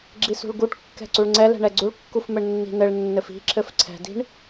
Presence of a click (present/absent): present